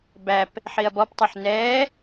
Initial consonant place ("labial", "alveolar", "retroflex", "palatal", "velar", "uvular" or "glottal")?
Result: labial